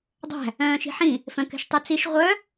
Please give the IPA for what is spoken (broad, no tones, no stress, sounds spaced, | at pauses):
dˤ æ̤ | œ̃ː ʃ i̤ ħ ĩ | f œ̃ k ɛ̤ ʃ tˤ ʉ t͡s i ʃ ʁʷ œ